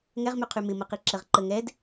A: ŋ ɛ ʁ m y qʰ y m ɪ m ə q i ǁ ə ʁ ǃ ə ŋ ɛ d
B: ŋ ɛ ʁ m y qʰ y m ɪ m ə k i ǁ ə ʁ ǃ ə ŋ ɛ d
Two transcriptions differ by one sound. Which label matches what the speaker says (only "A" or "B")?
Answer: A